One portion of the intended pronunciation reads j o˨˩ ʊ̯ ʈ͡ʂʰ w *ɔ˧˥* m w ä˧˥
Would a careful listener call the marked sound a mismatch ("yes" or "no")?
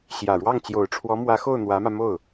no